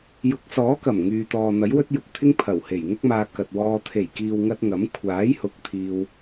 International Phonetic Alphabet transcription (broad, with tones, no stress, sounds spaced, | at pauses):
j ʊ˨˥ k̚ s ɔː˨˥ k ɐ˨˩ m ŋ yː˨ t̪ ɔː˨ n̪ ɐ˨˥ j w ɵ˥ t̚ j ʊ˨ k̚ t̪ʰ ɪ˥ ŋ pʰ ɐ˨˩ w h e˨˩ j ŋ ʊ˥ k̚ m aː˧ k ɐ˨ t̚ w ɔː˧ t̪ʰ e˨˩ j k iː˨ w ŋ ɐ˧ t̚ ŋ ɐ˨˥ m kʷʰ aː˨˥ j h ʊ˨˥ k̚ t̪ʰ iː˧ w